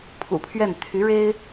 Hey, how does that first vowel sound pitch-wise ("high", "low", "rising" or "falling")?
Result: low